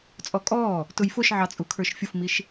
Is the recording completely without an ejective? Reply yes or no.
no